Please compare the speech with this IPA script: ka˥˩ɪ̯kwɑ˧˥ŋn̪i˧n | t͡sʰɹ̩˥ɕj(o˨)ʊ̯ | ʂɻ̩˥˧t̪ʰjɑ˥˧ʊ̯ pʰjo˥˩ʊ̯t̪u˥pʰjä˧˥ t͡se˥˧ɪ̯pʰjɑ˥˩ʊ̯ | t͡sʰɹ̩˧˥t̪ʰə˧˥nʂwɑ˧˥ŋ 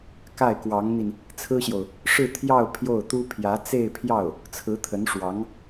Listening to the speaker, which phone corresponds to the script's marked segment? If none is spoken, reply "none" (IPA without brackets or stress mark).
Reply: o˨